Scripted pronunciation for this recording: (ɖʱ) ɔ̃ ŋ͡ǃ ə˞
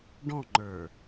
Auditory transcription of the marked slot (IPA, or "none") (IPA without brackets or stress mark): ɖ